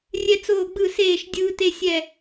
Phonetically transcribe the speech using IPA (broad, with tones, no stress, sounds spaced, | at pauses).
rʲ ɛ˥ t͡s oː˥˧ ɡ͡b ɯ˥˧ s eː˥˧ ʃ dʲ ɯː˥ t e˥ sʲ ɛ˥˧